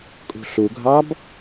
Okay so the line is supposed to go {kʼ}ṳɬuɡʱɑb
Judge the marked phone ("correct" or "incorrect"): correct